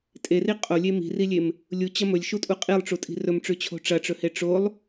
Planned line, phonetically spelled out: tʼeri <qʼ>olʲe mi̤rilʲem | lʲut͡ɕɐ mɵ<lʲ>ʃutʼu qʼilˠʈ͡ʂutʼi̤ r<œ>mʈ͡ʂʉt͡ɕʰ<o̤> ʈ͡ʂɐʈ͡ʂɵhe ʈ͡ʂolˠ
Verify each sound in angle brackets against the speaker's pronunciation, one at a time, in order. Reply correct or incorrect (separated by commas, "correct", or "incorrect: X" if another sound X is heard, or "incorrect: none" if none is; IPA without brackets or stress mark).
correct, correct, incorrect: ɵ, correct